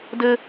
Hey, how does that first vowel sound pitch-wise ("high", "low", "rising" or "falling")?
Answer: high